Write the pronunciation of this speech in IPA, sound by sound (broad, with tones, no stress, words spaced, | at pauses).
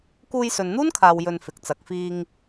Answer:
kuː˧jsɵ˨nn̪uː˥nkʰaː˨w jɵ˧n fɪ˨˥k̚t͡sɐ˨˥k̚ fiː˧ŋ